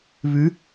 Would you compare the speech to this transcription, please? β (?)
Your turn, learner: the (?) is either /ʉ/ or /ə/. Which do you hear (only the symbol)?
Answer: ʉ